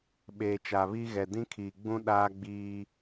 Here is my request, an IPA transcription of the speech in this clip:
ɓeː˨t͡ʃa˨ βi˦ ɣɛ˨dĩ˦kʰiː˨ɡ͡bũ˦ ɗaː˦ɡ͡biː˦

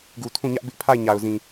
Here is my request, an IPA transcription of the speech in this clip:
ɡu˨tʰũ˦˨ ɲä˦ʔbɪ˦ʔpʰa˦˨ɪ̯ ɲa˨ʊ̯zĩ˨

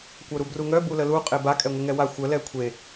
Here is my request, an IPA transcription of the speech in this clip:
kʷœɾubruŋœ buləlu qʼeba kʼɛŋʷəŋɛwa xʷə lɛkʷʰe

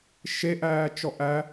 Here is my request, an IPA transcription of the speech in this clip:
ʃeʔæː t͡ʃɔʔæ

